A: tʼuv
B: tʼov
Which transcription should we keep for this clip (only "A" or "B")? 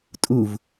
A